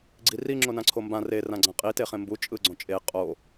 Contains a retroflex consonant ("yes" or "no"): no